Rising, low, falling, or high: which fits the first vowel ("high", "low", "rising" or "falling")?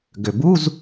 low